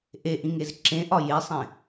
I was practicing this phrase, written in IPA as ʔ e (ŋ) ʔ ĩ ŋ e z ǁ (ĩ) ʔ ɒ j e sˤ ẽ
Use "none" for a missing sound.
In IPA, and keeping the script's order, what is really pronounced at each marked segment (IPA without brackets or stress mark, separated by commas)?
none, ẽ